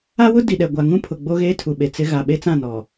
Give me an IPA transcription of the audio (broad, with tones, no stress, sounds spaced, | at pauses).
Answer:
a˦ w ʊ˦ d i˨ ɗ ɛ˨ ɡʷ a˨ ŋ ũ˦ pʰ ʊ˨ ɡ͡b o˦ ɣ eː˦ tʰ u˨ ɓ e˨ t͡s ɪ˦ ɣ a˨ ɓ e˦ t͡s ã˦˨ n ɔ˨